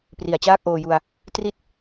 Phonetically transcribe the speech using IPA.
pri˨˩a̯t͡ɕaː˥˩k̚ʔoː˧ju˧a̯ | tri˦˥t̚

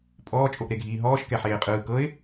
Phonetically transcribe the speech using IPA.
pʼɔː t͡ʃʼoʔɾeɡʱiːɦɔːʃ kɛħeːqʼɯː kɤɪ̯

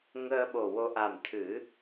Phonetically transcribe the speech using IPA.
ŋəː˧ɓo˨˩wo˧ ʔa˨˩mt̪ʰɨ˨˩˦

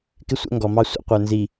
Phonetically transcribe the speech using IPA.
kɪ˦sʷɛ̰˦ŋɡɔ˨mɑ˦ sʷə̰˦ qʷə˞˨nzi˨

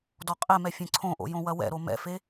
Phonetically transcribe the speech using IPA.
dɔqʼɛmɛ fʲẽǀʰõʔo̰ jõwɐwɛ̰ɾo mɛ̰fe

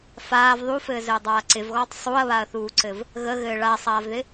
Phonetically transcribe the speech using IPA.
faːv ðˤufɘːzɘːdˤaː ǀɪvɣɔːtˤ sˤuɐ̯βaɐ̯θuːǀɘv | ɣəɣɘː ɭasˤaːvðɪ

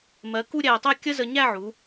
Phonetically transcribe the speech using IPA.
mɜ˩˧ku˥˧ ɾʲæ˧˩tˤɛ˥˧kʲə˥zə˧ ɲæ˥˧ʕu˩˧

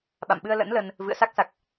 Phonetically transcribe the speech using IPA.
ɓa̰˧˨mɓɨ˧ə̯lə̰˧˥n lə˧n | vɨ̰˧˨ə̯sa˦˥k̚sa˨˩k̚

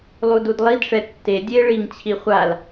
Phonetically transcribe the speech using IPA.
lˠududlˠidʂɛ tːe dʲe ɭiŋt͡ɕʰi χʷal

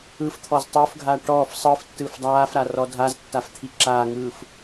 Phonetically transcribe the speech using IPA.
ɯf t̪ʰɔztˤʊːfɡʱaː ʈɔːf sˤɯf tːɯːfdˤaːfɾa rɔdʱaztːaf t̪ʰiǁaːŋɯːf

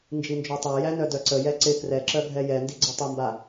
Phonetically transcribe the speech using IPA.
nd͡ʒind͡ʒœtˤæjæ nœdœǀəjɛ ǀɪ krɛǁœ ɡʱɛjɛndi ɡ͡ǀətˤəmba

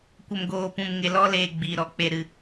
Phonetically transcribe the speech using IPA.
kʷə˨mɡoː˨pũ˨m ŋe˨lɔ˧leː˨ ɡ͡biː˨ɾɔ˨ k͡pe˨ɾɨ˨

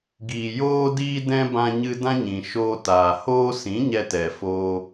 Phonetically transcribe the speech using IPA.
ɡiː˨ joː˧diː˧dɛ̃˧ bã˧ɲɨ˧dã˦ɲĩ˨ ʃoː˧taː˨ hoː˧sĩ˨˦ ɲɛ˧tɛ˨foː˧

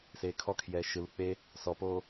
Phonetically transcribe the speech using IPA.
seːkʰɔkʰjɛː ʃɯlu k͡pe | sɔpoː

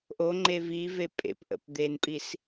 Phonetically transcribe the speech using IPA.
ʔo ŋ͡ǃevive pʼḛpʔə̰p d̪enpʼis

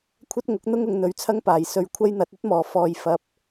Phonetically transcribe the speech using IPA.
kʷʰɐ˥t̚ŋʊ˨˥k̚n̪ʊ˥ŋ ʊ˨˧ŋn̪ɵ˨˥ɥt͡sʰɐ˥ŋpaː˨˩j sɵ˨˧ɥkʷʰɐ˥jn̪ɐ˨˥t̚ ɵ˥t̚mɔː˨˩ fɔː˨˩j fɐ˨˥p̚

